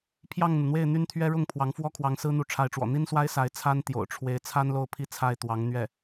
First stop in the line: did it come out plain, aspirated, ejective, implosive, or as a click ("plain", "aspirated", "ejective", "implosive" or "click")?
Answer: aspirated